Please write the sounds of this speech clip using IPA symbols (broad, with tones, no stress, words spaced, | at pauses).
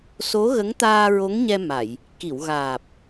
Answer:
so˧˥ɣə˧˥ŋt̪aː˧ ɹo˧˥ŋɲɛ˧ ma˨˩˨j | ki˨˩˨wɣaː˨˩p̚